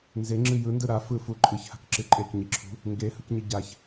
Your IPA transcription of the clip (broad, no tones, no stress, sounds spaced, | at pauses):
n z e ŋ͡ǁ ɨ j ɯ n d ɯ ɾ a f ɯ f u ǃʼ ɯ ç h a̤ k ǁ ɨ ǃʼ e k ɲ i ǁʰ ṳ | ŋ ɡ e h ɯ k ɲ ɨ ɟ a ç